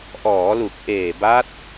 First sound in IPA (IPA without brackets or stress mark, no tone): ʔ